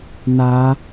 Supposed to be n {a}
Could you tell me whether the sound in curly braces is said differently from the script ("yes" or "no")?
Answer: no